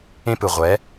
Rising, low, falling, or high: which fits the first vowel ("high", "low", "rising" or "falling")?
high